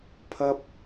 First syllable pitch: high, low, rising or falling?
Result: high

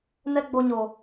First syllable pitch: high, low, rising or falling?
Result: high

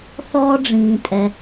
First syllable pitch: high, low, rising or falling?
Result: high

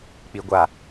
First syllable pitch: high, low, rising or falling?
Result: low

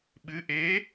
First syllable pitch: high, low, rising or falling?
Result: rising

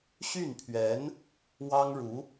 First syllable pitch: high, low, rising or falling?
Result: falling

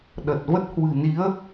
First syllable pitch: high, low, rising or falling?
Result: low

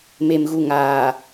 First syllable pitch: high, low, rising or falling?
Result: low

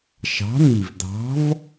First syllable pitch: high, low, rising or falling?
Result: rising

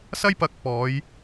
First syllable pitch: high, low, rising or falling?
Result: high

